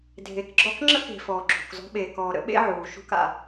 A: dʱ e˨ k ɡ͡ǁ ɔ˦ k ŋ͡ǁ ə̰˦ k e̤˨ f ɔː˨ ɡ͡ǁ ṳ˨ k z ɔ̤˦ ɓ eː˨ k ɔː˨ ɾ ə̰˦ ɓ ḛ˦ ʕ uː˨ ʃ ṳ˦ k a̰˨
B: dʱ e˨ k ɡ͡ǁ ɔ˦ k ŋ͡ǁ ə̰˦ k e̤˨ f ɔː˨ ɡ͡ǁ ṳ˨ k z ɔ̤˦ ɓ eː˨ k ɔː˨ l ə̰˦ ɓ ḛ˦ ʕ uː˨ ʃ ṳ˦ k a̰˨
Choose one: A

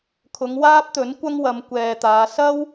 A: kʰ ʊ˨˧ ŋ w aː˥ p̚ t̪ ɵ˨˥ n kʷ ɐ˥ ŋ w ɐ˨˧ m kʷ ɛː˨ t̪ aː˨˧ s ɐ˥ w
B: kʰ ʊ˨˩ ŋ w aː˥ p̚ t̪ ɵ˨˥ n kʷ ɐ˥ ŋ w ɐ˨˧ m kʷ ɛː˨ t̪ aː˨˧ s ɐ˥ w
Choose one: A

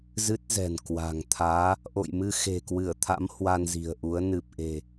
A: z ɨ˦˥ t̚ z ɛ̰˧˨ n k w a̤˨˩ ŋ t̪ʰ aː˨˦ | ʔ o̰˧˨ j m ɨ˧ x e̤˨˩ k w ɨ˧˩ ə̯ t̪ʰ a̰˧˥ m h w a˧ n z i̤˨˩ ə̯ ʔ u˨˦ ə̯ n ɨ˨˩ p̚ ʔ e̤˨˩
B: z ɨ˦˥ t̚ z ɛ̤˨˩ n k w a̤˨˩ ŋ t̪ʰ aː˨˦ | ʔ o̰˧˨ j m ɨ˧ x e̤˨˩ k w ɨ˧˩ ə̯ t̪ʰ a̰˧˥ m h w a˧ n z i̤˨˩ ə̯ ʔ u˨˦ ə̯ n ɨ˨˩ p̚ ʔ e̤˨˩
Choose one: B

